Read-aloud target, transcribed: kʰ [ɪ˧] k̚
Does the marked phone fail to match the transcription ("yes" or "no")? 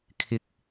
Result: no